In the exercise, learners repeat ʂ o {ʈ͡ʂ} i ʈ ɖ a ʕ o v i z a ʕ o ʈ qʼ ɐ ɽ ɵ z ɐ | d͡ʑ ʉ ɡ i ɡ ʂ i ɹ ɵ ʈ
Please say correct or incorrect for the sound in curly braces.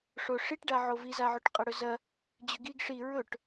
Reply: incorrect